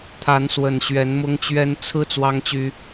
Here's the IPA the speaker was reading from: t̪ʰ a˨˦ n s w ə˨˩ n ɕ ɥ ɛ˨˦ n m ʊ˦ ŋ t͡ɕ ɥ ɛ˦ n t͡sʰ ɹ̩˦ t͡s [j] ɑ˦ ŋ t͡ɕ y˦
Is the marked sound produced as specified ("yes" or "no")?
no